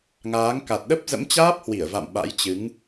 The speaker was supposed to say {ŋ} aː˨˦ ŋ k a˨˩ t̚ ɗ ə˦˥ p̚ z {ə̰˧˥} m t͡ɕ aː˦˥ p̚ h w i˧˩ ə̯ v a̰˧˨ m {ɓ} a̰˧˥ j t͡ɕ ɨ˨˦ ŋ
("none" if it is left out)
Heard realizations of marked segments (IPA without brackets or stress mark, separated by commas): ŋ, ə̰˧˥, ɓ